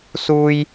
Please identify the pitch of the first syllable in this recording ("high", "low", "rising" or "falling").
high